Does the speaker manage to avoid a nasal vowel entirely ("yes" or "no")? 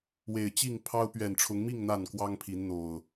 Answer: yes